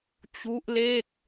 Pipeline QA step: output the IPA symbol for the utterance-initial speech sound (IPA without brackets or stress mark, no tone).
t͡ɕ